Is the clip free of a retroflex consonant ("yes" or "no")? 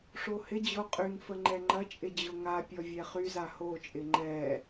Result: no